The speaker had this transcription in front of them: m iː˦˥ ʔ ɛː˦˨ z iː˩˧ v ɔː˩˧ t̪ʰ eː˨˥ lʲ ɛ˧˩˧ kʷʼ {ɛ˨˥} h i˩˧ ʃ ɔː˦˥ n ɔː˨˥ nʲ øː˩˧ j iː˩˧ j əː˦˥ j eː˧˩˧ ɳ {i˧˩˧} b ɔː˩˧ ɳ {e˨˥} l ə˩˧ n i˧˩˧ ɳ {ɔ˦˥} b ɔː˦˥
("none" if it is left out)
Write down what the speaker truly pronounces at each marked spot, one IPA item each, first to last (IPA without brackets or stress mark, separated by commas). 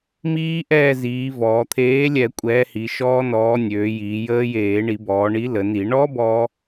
ɛː˨˥, i˧˩˧, i˨˥, ɔ˦˥